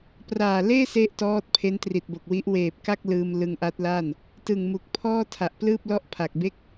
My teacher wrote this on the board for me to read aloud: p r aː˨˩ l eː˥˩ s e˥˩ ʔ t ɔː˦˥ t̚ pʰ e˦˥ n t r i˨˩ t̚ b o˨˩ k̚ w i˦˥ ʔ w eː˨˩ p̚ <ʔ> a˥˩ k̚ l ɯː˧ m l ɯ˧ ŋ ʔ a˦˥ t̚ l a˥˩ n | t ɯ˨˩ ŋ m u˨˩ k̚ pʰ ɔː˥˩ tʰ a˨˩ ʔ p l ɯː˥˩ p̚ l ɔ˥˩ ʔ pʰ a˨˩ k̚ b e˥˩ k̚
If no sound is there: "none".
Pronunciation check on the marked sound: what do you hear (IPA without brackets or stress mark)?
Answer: k